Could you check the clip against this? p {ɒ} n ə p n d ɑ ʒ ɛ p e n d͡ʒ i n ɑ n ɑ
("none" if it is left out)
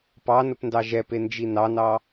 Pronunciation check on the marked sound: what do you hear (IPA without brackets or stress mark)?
ɑ